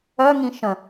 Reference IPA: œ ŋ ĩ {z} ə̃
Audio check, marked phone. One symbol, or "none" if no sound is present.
ʃ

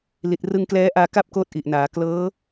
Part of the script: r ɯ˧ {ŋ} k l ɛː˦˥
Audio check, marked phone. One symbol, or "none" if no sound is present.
ŋ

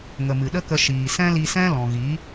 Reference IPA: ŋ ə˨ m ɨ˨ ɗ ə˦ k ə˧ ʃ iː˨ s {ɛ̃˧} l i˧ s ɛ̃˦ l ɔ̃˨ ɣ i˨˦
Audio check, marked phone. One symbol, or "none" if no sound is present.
ɛ̃˦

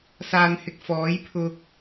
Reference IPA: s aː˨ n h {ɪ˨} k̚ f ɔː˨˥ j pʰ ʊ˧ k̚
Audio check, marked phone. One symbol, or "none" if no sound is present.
ɪ˨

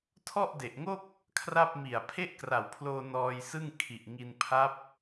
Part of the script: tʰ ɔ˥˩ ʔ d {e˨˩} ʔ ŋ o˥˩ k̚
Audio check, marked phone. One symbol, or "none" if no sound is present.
e˨˩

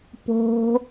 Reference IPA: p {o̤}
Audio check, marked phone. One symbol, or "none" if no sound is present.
o̤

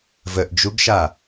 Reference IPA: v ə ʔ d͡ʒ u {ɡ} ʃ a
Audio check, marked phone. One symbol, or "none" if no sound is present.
ɡ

